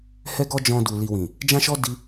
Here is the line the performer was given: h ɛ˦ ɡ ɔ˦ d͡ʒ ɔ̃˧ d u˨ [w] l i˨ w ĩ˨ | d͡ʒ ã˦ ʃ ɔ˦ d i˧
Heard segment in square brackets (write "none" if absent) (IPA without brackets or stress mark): none